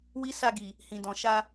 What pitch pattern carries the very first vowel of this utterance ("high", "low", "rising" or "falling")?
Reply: high